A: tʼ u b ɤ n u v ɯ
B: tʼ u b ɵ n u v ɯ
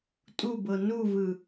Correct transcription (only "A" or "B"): A